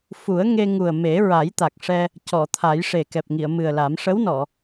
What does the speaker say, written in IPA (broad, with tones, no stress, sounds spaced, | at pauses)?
f u˨˩˦ ə̯ ŋ e˧ ŋ u˨˩ ə̯ m e˨˩˦ ɹ a˨˩˦ j t̪ a˨˩ k̚ ʂ ɛ˧ | c ɔ˨˩˨ t̪ʰ a˨˩˦ j ʂ e˨˩ k ɛ˨˩ p̚ ŋ i˨˩˨ ə̯ m ɨ˨˩ ə̯ l a˨˩˦ m ʂ ə˧˥ w n ɔ˨˩˨